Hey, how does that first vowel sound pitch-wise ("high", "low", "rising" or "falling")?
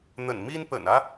low